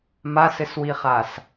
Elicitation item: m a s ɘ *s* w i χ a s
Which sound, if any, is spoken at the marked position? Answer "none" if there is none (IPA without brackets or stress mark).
s